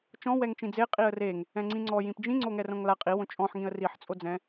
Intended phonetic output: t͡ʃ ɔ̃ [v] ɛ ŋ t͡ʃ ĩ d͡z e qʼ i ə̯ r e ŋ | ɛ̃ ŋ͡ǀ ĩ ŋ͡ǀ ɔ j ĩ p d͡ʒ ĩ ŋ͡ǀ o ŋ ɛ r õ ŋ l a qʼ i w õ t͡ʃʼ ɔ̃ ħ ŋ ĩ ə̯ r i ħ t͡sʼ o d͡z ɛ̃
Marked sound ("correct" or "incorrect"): incorrect